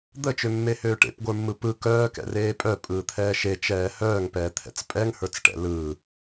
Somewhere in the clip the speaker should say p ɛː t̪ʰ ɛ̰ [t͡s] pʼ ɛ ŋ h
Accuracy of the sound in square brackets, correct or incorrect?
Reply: correct